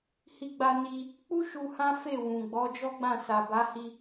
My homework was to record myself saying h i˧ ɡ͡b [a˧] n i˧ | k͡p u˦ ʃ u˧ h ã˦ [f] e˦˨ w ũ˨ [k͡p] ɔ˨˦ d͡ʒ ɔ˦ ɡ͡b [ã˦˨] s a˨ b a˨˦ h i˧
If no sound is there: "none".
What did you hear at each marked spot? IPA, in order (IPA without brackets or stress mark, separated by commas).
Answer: a˧, f, ɡ͡b, ã˦˨